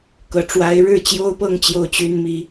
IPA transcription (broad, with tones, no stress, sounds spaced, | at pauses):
k ɤ˧˥ ʈ͡ʂ w a˧˥ ɪ̯ ɻ ɻ̩˥˩ t͡ɕ j o˥ ʊ̯ p ɤ˥˧ ŋ t͡ɕ j o˥˩ ʊ̯ t͡ɕ y˥ n m i˧˥